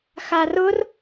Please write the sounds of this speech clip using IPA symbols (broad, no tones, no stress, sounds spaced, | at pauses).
x a r ʊ r